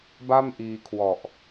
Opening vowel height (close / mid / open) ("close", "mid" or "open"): open